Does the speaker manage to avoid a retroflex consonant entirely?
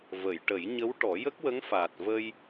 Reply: no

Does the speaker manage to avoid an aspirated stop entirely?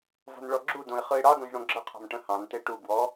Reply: no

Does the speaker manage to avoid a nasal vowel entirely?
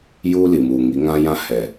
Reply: no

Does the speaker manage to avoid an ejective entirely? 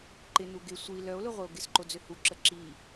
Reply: yes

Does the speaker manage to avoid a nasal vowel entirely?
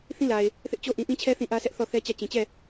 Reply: no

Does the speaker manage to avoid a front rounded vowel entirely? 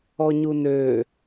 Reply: no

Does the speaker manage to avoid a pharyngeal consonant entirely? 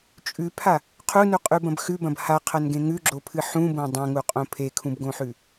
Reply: no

